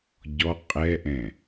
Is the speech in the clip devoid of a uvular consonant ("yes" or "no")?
no